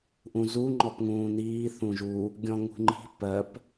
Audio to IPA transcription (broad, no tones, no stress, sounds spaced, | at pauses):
ʔ ũ z u ŋ͡ǃ ɔ p ŋ ũː n iː θ ũ ʒ u | ɡʲ ɔ̃ ŋ ṳ ŋ͡ǃ i̤ p ɜ p